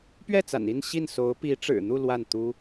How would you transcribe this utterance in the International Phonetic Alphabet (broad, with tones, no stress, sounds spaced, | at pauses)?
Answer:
p ɥ ɛ˥˩ t͡s a̰˨˩ n i˥˧ n ɕ i˥˩ n s o˧˥ ʊ̯ p i˧˥ ʈ͡ʂ ɻ̩˨˩ n̪ u˥˧ l w a˥˩ n t̪ u˥